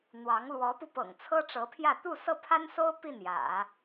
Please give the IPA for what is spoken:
n̪wɑ˧˥ŋ lwɔ˧˥pu˧pɤ̰˨˩ŋ t͡sʰɤ˥ʈ͡ʂɤ˧˥pʰjä˥˧ t̪u˥˧sɤ˥˩pʰa˥nso˥ʊ̯ pi˥˩njä̰˨˩˦

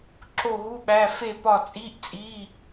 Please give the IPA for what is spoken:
ǁo˦˨ɦu˧˥˧ɓæ˧˥˧ fe˦˨pɒ˦˨t͡sʼi˧˥˧ʔt͡sʼi˧˥˧

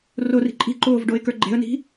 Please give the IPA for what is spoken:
rori̤ ǃʼi̤ǃoːvɖoɪ̯kə˞ ɡ͡ǃe̤ə̯ni̤

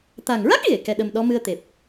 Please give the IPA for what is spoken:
t̪a˨˩ŋɹa˦˥k̚ ɣe˨˩˨ kɛ˧ɗə˧mɗɔ˧˥ mɨ˧ə̯t̪e˨˩p̚

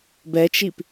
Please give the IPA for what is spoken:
bɛt͡ʃip

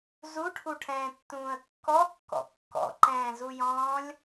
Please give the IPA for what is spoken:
zuʈʰuʈʰɛ̃ːtːũːə̯ kːɔkːɔ̰ kːɔ̰ǃɛ̃ːzujɔ̃ːlʲ

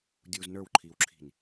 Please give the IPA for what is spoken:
dʲuːznə˞wǃʰiːwǁʰi̤n

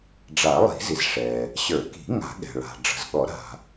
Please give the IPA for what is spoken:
ɖ͡ʐa˨˩˦lˠi̤˨˩˦zi˩z ʂɛ˩ | ɕə˞˨˩˦ki̤˨˩˦ ŋa̤˨˩˦ɠɛ̤˩ɭa̤˩ ɖ͡ʐə̤˩zɠɔ˨˩˦ɾa̤˩

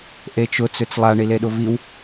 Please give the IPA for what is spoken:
ʔet͡ʃʊ t͡søt͡slˠa ɳileɗʊviw

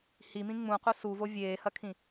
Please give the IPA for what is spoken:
himĩ ŋ͡mũqu suvo vʲeːhɐkʰĩ

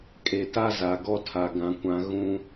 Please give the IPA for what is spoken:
kʼe˨ta˦ za˨ɡɔ˦ tʰa˨ɡã˨kʷã˨ ɣũ˨

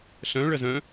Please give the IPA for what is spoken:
ɬœ̃ ɭəzœ̃

